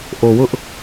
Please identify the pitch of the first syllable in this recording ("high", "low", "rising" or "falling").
low